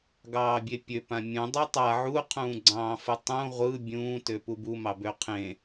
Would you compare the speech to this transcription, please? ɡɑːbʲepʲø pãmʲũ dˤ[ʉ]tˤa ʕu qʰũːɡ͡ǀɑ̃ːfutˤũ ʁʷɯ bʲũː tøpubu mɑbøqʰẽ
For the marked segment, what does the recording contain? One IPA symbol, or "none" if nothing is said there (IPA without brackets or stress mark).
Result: ø